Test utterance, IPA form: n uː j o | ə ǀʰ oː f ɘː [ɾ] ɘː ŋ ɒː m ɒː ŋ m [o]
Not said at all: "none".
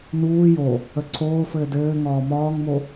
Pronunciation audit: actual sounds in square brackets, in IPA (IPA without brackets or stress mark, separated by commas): d, o